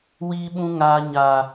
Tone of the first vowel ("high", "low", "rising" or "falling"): high